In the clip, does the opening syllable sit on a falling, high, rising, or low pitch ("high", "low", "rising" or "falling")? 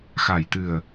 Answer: low